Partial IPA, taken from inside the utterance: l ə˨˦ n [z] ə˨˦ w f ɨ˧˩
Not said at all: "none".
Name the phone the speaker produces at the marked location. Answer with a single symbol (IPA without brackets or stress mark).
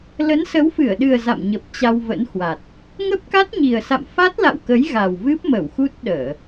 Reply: s